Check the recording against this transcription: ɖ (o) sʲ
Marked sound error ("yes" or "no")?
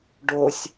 no